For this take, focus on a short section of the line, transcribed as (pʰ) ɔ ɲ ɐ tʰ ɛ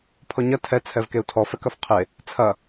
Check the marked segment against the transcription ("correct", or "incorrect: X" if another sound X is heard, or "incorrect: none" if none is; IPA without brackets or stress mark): correct